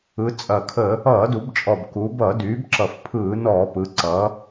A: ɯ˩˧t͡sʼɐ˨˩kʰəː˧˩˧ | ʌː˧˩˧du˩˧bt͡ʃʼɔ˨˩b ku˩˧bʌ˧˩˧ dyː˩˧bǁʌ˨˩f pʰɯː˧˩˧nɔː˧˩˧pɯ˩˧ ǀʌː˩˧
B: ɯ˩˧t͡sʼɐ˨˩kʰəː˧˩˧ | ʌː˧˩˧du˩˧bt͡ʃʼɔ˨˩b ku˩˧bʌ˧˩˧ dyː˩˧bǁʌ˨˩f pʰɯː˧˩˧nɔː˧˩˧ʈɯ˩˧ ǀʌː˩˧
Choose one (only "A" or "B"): A